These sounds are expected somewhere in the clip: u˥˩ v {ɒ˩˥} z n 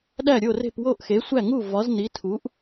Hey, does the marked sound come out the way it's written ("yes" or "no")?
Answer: yes